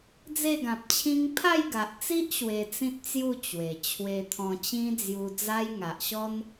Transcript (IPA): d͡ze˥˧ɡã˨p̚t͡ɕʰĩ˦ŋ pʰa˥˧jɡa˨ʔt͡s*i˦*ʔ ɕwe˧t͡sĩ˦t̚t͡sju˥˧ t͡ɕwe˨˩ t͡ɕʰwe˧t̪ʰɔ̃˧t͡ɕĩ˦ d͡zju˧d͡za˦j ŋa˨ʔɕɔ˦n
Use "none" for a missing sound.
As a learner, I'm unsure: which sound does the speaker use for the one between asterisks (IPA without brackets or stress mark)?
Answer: i˦